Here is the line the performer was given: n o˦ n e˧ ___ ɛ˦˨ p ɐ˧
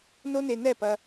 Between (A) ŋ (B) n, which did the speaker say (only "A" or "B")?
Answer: B